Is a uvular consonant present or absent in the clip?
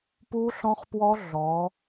present